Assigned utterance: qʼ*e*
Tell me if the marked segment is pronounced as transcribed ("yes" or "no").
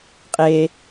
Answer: yes